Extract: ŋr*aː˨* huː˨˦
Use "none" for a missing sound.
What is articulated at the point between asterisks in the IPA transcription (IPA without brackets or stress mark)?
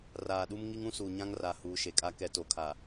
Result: a˨